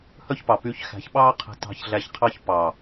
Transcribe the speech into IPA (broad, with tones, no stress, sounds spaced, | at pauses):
h œ˦ ç p ɑ˨ p yː˧ ç x æ̤˨˦ ç ɓ ɑː˦ qʰ ɛ̤˧ t ɑ̤˧ ç ɮ æ˧ ç qʰ ɑ˦ ç p ɑ˨